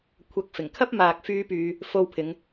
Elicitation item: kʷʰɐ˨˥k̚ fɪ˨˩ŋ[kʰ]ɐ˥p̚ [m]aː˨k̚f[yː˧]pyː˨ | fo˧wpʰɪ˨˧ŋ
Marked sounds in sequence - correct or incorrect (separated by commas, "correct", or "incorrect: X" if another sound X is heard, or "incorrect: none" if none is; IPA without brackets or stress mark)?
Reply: correct, correct, correct